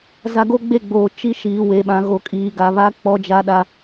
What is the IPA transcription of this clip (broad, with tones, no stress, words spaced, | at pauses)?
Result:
za˦ ɡo˦ɡ͡be˦˨ɡ͡boː˨ t͡ʃi˦ ʃiː˨ we˨ɓã˨ ɣo˨kʼiː˨ɡa˨ βa˦ k͡pɔ˦d͡ʒa˦ɗa˦